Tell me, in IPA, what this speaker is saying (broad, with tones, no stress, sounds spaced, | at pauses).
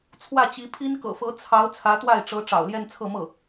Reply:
t͡sʰ w ä˥˩ t͡ɕ i˧˥ pʰ i˥ n k ɤ̰˨˩ f ɤ˧˥ t͡sʰ ɑ˧˥ ʊ̯ t͡sʰ ä˧˥ t̪ w a˥˩ ɪ̯ ʈ͡ʂ ɤ˧˥ ʈ͡ʂ ɑ̰˨˩ ʊ̯ l j ɛ˥˧ n t͡sʰ ɤ˥˧ m ɤ˥˩